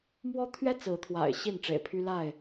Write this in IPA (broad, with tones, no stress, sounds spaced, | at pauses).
m w ɔ˦ t̪ʰ ɥ ɛ˦ t͡s ɹ̩˨˦ t̪ʰ w a̰˨˩ ɪ̯ ɕ i˥˨ n ʈ͡ʂ ḛ˨˩ ɪ̯ pʰ y˦ l a˥˨ ɪ̯